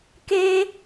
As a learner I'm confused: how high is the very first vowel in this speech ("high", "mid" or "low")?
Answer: mid